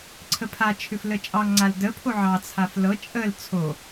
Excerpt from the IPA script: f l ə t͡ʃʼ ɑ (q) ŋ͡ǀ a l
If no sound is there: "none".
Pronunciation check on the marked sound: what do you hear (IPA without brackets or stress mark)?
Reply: ŋ